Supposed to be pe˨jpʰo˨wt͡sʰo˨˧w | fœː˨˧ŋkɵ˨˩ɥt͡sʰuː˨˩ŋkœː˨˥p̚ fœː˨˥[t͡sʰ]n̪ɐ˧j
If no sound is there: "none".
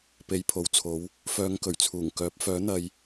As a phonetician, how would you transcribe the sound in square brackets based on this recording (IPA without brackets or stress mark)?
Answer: none